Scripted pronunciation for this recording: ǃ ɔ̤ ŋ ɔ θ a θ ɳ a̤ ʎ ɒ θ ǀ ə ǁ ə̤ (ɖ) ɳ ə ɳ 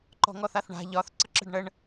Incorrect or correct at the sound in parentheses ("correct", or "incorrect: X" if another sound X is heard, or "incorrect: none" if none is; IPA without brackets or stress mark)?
correct